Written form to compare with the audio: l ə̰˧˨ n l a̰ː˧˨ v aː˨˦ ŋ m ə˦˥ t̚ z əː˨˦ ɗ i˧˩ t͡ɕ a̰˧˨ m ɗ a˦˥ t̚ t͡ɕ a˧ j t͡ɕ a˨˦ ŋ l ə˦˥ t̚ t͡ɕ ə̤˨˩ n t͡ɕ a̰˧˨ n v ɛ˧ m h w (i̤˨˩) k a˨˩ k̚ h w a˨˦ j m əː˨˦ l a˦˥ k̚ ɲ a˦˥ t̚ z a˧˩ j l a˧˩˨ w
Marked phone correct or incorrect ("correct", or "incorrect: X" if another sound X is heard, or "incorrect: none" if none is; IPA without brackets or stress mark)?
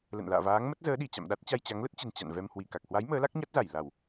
incorrect: i˧˩